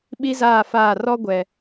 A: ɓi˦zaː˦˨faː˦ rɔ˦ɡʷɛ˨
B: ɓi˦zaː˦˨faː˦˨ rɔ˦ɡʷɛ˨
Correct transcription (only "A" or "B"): B